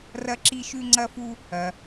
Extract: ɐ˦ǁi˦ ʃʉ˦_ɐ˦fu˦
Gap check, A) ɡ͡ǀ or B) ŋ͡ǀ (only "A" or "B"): B